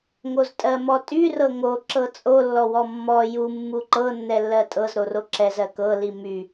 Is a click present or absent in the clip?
present